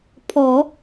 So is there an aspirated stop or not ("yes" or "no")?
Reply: yes